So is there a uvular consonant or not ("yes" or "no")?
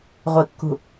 yes